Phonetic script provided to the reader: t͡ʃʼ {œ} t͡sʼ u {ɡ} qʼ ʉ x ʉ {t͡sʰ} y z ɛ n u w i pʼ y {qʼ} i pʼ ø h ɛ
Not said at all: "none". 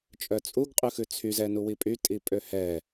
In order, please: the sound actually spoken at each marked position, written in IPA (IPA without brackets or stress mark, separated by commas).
œ, ɡ, t͡sʰ, tʼ